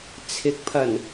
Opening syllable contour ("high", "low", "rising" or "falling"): rising